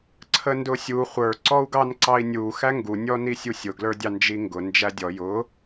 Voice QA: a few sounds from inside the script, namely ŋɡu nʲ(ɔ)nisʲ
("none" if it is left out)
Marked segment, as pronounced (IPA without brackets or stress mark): ɔ